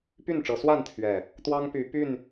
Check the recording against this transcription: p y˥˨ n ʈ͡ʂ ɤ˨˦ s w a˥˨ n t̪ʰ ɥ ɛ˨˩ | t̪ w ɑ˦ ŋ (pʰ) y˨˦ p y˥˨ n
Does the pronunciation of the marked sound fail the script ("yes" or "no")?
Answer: yes